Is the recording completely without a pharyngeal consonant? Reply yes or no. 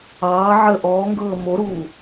no